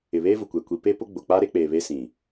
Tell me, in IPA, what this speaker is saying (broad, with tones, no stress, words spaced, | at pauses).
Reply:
ɪ˨βeː˦vʊ˨kʷeː˨ kʷi˨pe˦ pʊ˦ɡ͡bʊ˨ k͡pa˦ɾe˦ k͡pe˨ βe˦sĩ˨